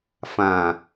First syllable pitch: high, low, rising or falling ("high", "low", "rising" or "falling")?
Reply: low